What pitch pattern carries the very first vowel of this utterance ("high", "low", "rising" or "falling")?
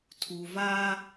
low